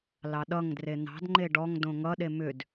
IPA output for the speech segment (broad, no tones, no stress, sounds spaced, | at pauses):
l ɑ ɗ ʌ ŋ d r e n̪ ɑ̤ d ŋ͡ǃ e ɖ ɔ ŋ d õ ŋ ʌ ɗ e m ʏ d